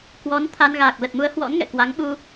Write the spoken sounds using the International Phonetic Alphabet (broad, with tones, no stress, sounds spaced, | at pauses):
k w ɔ˨˦ n t̪ʰ a˧ n ɣ aː˨˩ k̚ l ə˨˩ t̚ m u˨˦ ə̯ h w ɔ̰˧˥ n ŋ ɛ̰˧˨ k w a˨˦ ŋ ɓ u˧